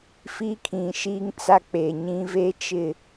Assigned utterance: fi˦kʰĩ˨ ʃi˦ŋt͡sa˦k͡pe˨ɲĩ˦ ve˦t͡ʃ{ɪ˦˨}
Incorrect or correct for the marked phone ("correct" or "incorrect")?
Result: correct